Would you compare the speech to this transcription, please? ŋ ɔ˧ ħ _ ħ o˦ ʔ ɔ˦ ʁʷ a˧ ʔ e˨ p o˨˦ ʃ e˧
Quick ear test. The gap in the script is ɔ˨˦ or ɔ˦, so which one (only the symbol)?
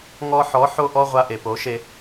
ɔ˨˦